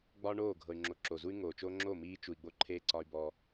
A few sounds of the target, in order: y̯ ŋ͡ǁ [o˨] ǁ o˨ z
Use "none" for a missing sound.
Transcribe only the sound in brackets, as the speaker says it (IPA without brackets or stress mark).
o˨